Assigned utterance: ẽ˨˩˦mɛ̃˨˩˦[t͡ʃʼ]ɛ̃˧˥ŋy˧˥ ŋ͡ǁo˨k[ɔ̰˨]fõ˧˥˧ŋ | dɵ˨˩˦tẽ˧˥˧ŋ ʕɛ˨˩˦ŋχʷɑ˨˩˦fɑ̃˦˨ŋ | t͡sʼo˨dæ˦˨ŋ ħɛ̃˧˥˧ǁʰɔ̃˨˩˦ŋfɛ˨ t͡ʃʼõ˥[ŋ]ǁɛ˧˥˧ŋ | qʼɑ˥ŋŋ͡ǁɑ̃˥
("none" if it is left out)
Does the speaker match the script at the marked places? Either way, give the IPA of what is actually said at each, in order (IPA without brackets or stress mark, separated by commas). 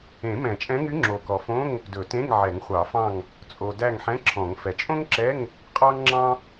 t͡ʃʼ, ɔ˨, ŋ